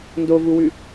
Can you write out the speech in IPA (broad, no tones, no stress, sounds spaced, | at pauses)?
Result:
n d o v u w ʉ